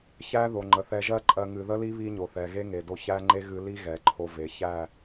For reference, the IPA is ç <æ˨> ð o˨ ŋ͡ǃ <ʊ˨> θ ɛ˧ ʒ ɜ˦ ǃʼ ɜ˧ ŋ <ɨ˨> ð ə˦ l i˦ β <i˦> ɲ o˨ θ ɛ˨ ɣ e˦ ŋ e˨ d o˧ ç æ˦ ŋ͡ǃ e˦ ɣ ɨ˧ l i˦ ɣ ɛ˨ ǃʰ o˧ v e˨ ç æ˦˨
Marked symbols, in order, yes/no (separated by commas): no, no, yes, yes